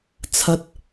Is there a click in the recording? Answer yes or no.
no